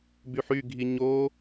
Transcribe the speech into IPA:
b y ħ y ɡʱ i ɲ o

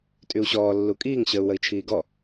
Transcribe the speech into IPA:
tʼ y u̯ ɕ ɔː lː u kʼ iː ŋ ɕ əː u̯ w ə i̯ t͡ʃʰ iː ɡ ɔ

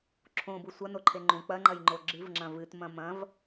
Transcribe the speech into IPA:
ǁʰ õ b u sʷ ɐ n o ǃʰ e ŋ͡ǃ ũ k͡p ɐ ŋ͡ǃ ɐ j ŋ͡ǃ o ɡ͡ǁ ɨ v ŋ͡ǁ ɐ̃ v ɨ t m ɐ̃ m ɐ̃ v

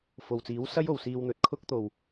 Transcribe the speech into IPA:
f o˨˩ w t͡s iː˨˥ w s ɐ˥ j o˨˩ w s iː˧ w n̪ ɵ˨˥ t̚ kʰ ʊ˥ k̚ t̪ o˨˩ w

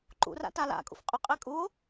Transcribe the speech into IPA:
ǃ ṵ r a̰ t a l a̰ kʼ ṵ f qʼ ʏ qʼ e kʼ u o̯

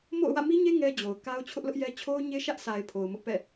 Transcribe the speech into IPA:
m o̰˦˨ ʊ̯ w ä̰˦˨ m i˦ ɲ e˦ ŋ ɛ˦ d͡ʑ o˨ ʊ̯ k a˦ ʊ̯ t͡ɕʰ ʊ˦ ʔ l ʊ˦ ʔ j ɛ˦ t͡ɕʰ o˦ ʊ̯ ɲ e˦ ʃ ä˦ ʔ s a˨ ɪ̯ pʰ o˨ ʊ̯ m ʊ˦ ʔ p ɛ̰˦˨

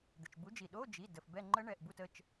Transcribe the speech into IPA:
d̪ ɘ˩ t͡ʃ b u˨˥ d͡ʒ i˩ ɗ o˧˥˧ d͡ʒ i˩˧˩ d ə˩ f b ɛ˦˨ ŋ͡ǃ ə˦˥ ɳ ɛ˩˧˩ ʔ b u˦˨ t ə˩˧˩ t͡ʃ

